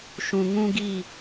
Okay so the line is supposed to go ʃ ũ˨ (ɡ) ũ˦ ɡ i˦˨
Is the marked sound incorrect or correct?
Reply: incorrect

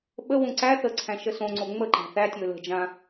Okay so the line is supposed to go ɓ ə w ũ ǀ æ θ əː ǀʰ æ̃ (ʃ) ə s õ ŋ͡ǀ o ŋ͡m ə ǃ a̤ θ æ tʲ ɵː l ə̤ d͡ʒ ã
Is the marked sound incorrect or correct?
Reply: correct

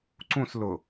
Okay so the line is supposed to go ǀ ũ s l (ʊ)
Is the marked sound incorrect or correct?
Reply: correct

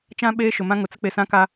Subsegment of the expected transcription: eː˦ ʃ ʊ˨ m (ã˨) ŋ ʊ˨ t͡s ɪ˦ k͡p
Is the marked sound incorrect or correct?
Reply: incorrect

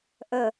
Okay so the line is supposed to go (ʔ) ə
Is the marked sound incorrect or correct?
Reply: correct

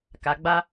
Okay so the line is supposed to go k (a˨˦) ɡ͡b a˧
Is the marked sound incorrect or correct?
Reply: incorrect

